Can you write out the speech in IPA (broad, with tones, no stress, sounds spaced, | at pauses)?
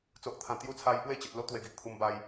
t͡s o˨ ʔ t̪ʰ ã˨˩ t̪ j u˧ t͡sʰ a˧ j p w e˥˧ t͡ɕ ə˨ t̚ l o˦ t̪ w e˨˩ ɡ i˨ ʔ t̪ʰ u˧ m b a˧ j